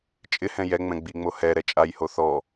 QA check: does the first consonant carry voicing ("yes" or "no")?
no